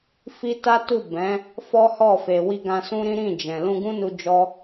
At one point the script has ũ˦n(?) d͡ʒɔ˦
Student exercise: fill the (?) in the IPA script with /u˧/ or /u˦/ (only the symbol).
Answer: u˧